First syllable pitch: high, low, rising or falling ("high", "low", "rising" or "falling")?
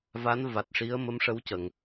rising